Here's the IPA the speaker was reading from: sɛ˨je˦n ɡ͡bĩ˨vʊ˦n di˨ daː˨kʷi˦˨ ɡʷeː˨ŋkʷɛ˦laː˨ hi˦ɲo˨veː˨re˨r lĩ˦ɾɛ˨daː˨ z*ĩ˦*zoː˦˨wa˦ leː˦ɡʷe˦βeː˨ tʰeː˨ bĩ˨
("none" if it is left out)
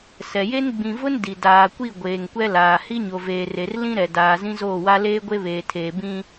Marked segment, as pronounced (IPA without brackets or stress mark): ĩ˦